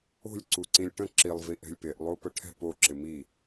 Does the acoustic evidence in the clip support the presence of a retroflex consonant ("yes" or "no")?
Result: yes